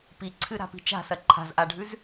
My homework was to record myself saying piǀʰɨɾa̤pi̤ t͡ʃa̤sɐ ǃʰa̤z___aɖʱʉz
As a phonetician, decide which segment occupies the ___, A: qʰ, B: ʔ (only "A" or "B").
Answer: B